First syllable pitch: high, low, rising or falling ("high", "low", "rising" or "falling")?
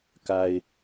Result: low